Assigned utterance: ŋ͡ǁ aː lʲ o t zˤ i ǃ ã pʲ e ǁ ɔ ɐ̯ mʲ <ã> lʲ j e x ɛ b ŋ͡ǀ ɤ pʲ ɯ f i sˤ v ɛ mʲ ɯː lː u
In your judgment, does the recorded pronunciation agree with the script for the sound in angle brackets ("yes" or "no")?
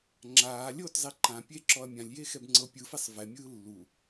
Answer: yes